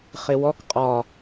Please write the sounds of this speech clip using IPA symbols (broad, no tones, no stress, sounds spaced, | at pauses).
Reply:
χ ɪ w ɔ k qʼ ɒ